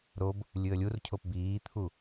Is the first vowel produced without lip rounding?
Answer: no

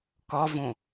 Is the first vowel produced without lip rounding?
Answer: no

